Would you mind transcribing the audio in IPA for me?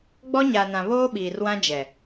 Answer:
ɡ͡bɔ˦ɲa˨nã˨ βoː˦ɓiː˨rwã˦d͡ʒɛ˨

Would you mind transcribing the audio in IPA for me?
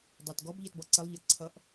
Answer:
dˤɑt ɡɔbʎɜtbɔ ǀəlˠʎɜ ǀʰʌʔ

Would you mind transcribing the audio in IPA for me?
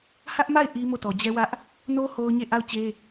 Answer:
hä˦ʔma˦˨ɪ̯ ʔi˦ mo˦˨tɔ˨ d͡ʑɛ˦wä˦ʔ | no˦ ho˦ʊ̯ɲe˦˨ ʔa˦˨ʊ̯ t͡ɕe˦

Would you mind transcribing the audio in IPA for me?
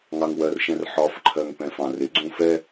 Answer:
ŋɑŋwɜrʃɛ̃r ħɒfǃʰɜŋ pɛ̃fɑ̃rɪ ɡ͡ǀũfɛ

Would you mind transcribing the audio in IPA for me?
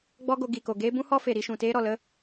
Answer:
ɡ͡bɔ˦ɡo˧ ɡi˨ko˨ ɡeː˦ bũ˦hɔ˦fe˨ ɾi˧ʃũ˨teː˦ ɾɔ˨lə˦

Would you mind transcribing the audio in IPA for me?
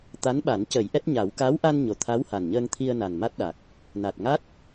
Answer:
t̪a˧˥nɓa˨˩˦n cə˨˩˦jʔɛ˦˥t̚ɲa˨˩˦w ka˧˥wʔa˧n ɲo˨˩t̪ʰa˧˥w ha˨˩nɲəː˧ŋt̪ʰi˧ə̯ na˨˩nma˦˥t̚ɗa˨˩k̚ | na˨˩t̚ŋa˦˥t̚

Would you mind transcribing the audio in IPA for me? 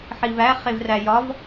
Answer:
ħivæ χevræjɒv

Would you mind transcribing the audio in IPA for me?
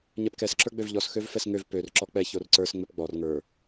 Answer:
ɲɛpkɛs ǁə˞ɡ͡bøvʎɔs xøvfɛsŋøv pør ǁɔk͡pɛ çorǀə˞s ŋ͡mɛpɡ͡bɔr ŋə˞

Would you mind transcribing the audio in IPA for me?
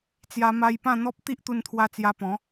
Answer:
t͡sja˧ma˧j pã˥˧n̪ɔ˦p̚ t̪i˦ʔt̪u˧nt̪ʰwa˧ t͡sja˧pɔ̃˨˦

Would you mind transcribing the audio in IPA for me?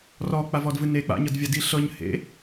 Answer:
rɔk͡pavɔdvɨ ne k͡pa̰ɲɤdvʲadi ɬɤɲ hḛ

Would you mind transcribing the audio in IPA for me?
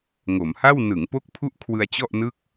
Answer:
ŋo˩˦mha˥˩w nɯ˩˦ŋpo˦˥k̚pʰu˦˥ʔ kʰwɯ˧a̯t͡ɕɔ˥˩ʔnɯ˥˩k̚

